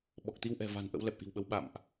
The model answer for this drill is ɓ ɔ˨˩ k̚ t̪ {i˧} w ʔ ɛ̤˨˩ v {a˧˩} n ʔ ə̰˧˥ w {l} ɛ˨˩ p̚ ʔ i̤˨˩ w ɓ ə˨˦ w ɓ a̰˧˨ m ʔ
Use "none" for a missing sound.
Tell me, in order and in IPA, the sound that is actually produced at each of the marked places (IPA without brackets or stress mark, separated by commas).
i˧, a̤˨˩, l